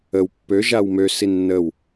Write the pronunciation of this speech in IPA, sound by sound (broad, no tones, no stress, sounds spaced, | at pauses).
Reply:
ə w pː ø ʒ a w m ø s i nː ə w